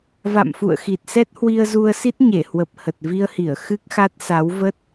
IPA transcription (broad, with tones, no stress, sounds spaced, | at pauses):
v a̰˧˨ m f ṵ˧˨ ə̯ x i˨˩ t̚ s ɛ˦˥ t̚ h w i˧ ə̯ z u˧ ə̯ s i˦˥ t̚ ɲ e˧˩ h w ə˨˩ p̚ h ə˨˩ t̚ v i˧ ə̯ h i˧˩ ə̯ x ɨ˦˥ k̚ x a˦˥ t̚ s a˨˦ w v ə˦˥ t̚